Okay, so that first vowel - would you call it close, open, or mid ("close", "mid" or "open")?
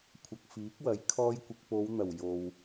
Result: open